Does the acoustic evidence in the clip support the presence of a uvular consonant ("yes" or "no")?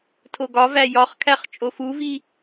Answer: yes